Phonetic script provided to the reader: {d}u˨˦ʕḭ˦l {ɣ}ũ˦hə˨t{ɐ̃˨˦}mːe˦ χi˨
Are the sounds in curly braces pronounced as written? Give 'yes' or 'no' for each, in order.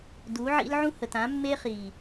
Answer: yes, no, no

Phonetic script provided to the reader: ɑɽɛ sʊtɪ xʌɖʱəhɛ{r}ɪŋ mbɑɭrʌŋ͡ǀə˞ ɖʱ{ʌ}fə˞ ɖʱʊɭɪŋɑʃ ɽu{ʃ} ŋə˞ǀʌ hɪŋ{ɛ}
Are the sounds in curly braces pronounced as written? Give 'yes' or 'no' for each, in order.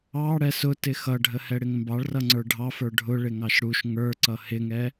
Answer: no, no, yes, yes

